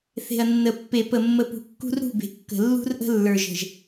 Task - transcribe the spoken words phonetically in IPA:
θ e̤˨ ɐ̯ nː ə˨ pː e˨ p ə˨ mː ə˨ p ṳ˨ kː ṳ˦ r ɾ ṳ˦˨ b e̤˨ kː ə̤˨ lː ṳ˦ r ʔ ə̤˦ lː ə˞˨ ʒ ə̤˨ ʒ

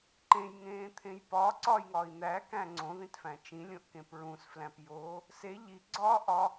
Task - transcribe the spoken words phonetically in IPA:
ǃ ẽ j ŋ ẽː t̪ʰ ẽ j p ɒ ǀ ɒ j ŋ ɒ i̯ n̪ æ k æ̃ ŋ͡ǀ õ ð ĩ t f æ̃ t͡ʃ ĩ lʲ õ ʔ k ẽ p ɹ ũ s f l æ̃ p j oː | s e ʎ i ɡ͡ǀ ɒː ʔ ɒ

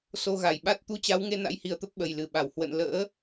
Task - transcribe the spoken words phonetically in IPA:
s o˧ ɣ a˧˩ j ɓ a˦˥ t̚ t̪ u˧ t͡ɕ a˨˦ w ŋ e˧ n a̰˧˥ j h i˨˩ ə̯ t̪ ə˦˥ p̚ ɓ ə˨˩ j l ɨ˨˩ ɓ a˧˩ w h w ə̰˧˨ n l ə̰ː˧˥

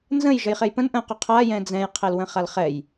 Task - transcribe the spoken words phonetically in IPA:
n z ə̃ j ʒ ə j χ e j p ə̃ n ʔ ə̃ q ʊ qʰ a j ɛ̃ d͡z ɛ̃ j qʰ e l w ə̃ χ a l χ ɛ j

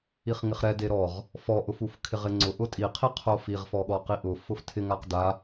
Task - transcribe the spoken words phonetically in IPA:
i χ ŋ ɪ χ ɾ ɛ d e ɾ ɔ ʁ | f ɔ ʔ ʊ f u f kʰ ɪ ʁ ɪ ŋ͡ǀ ʊ ʔ ʊ tʼ i qʰ i qʰ o f i ʁ f ɔ ɠ ɔ q i ʔ ʊ f ʊ f tʰ ɪ ŋ a q d a

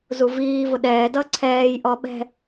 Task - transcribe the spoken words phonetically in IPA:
z u v iː v ʊ ɗ ɛː d ʌ ǀʰ ɛː j ʔ ɔ ɓ ɛ̤

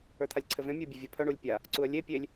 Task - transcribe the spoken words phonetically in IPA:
ə˞ t̪ʰ a lʲ ǀʰ ɘ v ẽ mʲ ə˞ bʲ œ vʲ ɐ pʰ œ ɳ u lʲ pʲ a | ǀ u ə̯ lʲ e pʲ e lʲ

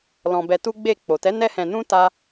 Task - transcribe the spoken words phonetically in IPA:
l ɔ̃˧ b ɛ˧ t u˦ ɡ͡b e˦˨ k͡p o˨ t ɛ˨˦ n ɛ˦ h ɛ̃˧ n ũ˦ t a˦

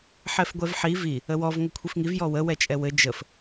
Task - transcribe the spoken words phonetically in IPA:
ħ ɛ f ɡʷ ɛ v ħ i v i | ə w ɔ v ŋ ɘ kʷʰ i f ŋ i v j ɔ w ə w ɛ t͡ʃʼ ɛ w ɘ d͡ʒ ə f

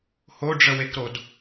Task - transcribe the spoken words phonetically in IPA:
h o ɖ͡ʐ ə w e k ɾ o d

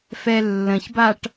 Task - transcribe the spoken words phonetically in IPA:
f ɛ lː ə̃ ç b a ʈ

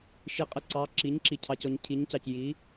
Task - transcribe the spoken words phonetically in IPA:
ʃ i˩˥ qʼ ɪ˨ ǀ ɑ˩˥ ǁ i˩˥ ɲ ǁ i˨ cʰ ɑ˨ c ɔ˨ ɲ cʰ i˩˥ ɲ c ɑ˨ c j i˩˥

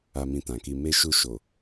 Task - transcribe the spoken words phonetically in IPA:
a˧ m ĩ˧ t ã˨ k i˧ m e˦ ʃ u˦˨ ʃ o˨

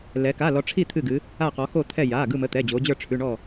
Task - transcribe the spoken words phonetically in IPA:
l ɛ˩˧ k a˩˧˩ l ɔ˩˧ ʈ͡ʂʰ i˧˩ t̪ʰ ɨ˧˩ ɡ ɨ˩˧ | a˧˩ q ɔ˩˧ x o˧˩ t̪ʰ ɛ˧˩ j a˩˧˩ ɡ ɯ˧˩ m ə˩˧˩ t̪ ɛ˩˧˩ d͡ʑ o˩˧ d͡ʑ ə˞˧˩ ʈ͡ʂʰ ʉ˩˧˩ ɳ ɔ˧˩

